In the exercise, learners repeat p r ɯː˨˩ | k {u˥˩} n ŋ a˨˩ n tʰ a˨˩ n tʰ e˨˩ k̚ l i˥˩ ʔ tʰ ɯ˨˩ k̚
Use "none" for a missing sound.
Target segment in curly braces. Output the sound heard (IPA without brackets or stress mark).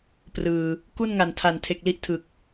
u˥˩